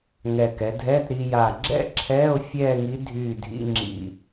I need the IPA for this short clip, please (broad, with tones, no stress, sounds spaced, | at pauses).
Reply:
ŋ ɛ˧˩ k ɛ˩˧ dʱ ɛː˧˥˧ t ɾ iː˧ j aː˧˩ ɡ͡ǁ ɛ̰˥˧ ǁʰ ɛː˧˥˧ o̯ fʲ ɛː˥˧ ŋ i˧˥ dʱ yː˧˩ dʱ ḭ˧˥˧ ŋ͡ǁ ḭ˧˩